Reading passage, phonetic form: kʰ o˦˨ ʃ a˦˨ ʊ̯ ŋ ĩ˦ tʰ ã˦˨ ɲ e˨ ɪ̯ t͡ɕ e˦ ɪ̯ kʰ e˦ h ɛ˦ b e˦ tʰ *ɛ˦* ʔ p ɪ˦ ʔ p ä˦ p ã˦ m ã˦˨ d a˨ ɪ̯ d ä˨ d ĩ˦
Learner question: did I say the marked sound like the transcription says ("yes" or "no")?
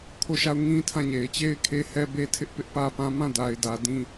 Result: no